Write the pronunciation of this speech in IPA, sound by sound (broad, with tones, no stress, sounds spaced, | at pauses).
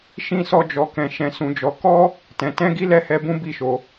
ʃ ĩ˦ s ɔ˦ d͡ʒ ɔ˧ k ɛ̃˧ ʃ ɛ̃˧ s ũ˧ d͡ʒ ɔ˧ k ɔ˦ | t ɛ̃˧ t ɛ̃˦ ɡ i˦ l ɛ˦˨ h ɛ˧ b ũ˦ b i˦˨ ʃ o˧